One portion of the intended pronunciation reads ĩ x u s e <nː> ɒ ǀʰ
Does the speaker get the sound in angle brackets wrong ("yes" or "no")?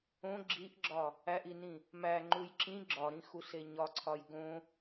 yes